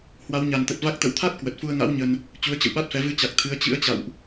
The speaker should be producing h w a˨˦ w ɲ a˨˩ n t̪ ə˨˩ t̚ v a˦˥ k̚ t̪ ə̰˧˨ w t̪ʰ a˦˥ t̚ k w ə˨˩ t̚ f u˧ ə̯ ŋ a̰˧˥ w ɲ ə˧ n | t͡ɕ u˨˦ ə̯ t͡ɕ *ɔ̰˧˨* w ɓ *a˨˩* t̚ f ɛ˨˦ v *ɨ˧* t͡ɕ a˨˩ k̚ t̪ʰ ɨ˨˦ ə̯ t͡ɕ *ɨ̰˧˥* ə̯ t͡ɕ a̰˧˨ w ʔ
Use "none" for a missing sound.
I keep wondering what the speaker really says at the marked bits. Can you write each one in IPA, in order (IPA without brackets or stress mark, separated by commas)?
ə̰˧˨, a˦˥, ɨ˧, ɨ̰˧˥